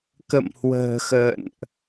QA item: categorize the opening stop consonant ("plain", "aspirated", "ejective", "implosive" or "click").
plain